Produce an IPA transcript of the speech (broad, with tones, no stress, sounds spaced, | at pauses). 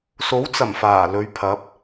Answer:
s o˨˥ w t͡s ɐ˨˩ m f aː˨˩ l ɵ˨˧ ɥ pʰ ɐ˨˥ p̚